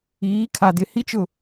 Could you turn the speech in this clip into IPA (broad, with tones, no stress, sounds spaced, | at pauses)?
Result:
iː˨˦ kʰ a˨ d ɪ˨ h i˦ t͡ʃ ʊ˦˨